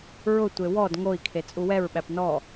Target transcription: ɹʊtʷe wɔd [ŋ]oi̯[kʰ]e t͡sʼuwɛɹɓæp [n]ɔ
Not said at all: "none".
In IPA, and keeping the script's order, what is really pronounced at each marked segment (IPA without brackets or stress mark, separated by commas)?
ŋ, kʰ, n